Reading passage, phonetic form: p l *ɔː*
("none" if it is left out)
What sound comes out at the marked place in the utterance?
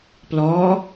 ɔː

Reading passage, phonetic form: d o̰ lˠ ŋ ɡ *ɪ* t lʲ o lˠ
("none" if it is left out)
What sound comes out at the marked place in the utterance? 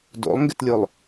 ɪ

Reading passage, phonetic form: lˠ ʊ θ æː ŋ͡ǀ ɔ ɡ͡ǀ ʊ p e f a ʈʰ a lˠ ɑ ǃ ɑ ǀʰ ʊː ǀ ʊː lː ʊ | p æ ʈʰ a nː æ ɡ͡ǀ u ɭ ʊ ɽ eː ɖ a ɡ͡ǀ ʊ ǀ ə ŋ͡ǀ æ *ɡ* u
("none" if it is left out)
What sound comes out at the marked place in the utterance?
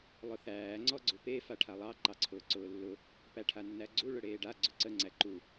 ǃ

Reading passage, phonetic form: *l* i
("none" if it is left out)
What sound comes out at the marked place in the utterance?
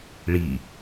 ɭ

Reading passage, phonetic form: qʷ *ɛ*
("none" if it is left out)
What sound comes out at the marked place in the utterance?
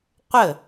ə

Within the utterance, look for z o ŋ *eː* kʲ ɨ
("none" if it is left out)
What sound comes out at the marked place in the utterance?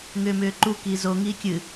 iː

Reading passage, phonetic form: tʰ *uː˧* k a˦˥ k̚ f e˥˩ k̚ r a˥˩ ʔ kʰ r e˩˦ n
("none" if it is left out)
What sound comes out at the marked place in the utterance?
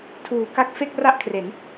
uː˩˦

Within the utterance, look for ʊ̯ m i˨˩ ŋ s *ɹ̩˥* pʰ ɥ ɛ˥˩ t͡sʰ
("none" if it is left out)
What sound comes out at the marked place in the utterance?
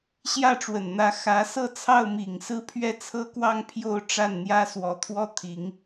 ɹ̩˥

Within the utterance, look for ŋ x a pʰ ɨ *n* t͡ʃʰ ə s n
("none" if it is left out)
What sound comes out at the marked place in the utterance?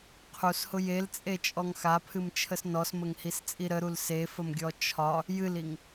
m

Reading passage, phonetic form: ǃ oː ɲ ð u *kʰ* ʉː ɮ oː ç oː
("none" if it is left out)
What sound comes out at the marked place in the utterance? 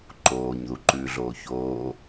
ǃ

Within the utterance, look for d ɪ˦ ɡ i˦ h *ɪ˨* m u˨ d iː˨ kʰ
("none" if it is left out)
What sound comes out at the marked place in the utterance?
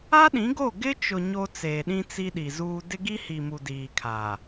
i˨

